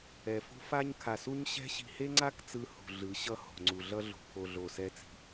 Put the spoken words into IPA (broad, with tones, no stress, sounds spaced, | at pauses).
ɛ˨ f o̤˦ f a˦ ɲ kʰ a˨ s u˦ ɲ ɕ ɛ̤˦ ɕ i̤˨ h e˦ ŋ͡ǀ a˦ k t͡s ɯ˨ h ṳ˨ ɮ ɯ˨˦ ɕ ʌ˦ h o̤˨ ŋ͡ǀ u˨ ɮ ʌ˦ ɮ o̤˨ pʰ o˨ ɮ o˨ s ɛ˦ t͡s i̤˦